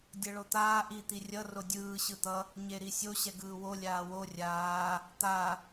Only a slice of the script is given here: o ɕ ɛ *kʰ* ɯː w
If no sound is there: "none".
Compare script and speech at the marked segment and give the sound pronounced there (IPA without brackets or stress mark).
ɡ